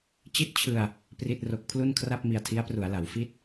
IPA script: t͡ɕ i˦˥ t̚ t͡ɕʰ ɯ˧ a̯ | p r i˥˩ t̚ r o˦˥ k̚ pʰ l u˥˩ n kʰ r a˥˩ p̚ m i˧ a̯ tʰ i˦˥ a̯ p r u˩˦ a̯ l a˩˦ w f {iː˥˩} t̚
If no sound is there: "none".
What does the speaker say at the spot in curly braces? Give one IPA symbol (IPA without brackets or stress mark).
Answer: i˥˩